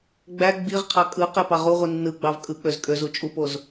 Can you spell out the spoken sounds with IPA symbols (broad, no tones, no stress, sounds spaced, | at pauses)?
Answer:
ɡ͡b æ ɡ͡b i ʁ qʰ ɑ kʼ ɯ q e p ɑ ʁ u ʁʷ i nː ɯ ɡ͡b ɑ v kʼ ɯ k͡p ø z kʼ ø z u t͡ʃʼ u p o z